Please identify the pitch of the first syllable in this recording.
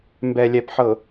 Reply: low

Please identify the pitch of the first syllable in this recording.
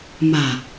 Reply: low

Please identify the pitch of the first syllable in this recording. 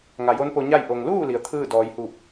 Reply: low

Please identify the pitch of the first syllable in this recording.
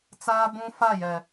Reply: high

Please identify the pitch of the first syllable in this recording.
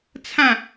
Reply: falling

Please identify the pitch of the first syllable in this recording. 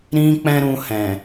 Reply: high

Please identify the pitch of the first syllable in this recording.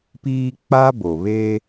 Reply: high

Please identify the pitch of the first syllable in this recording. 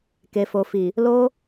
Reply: low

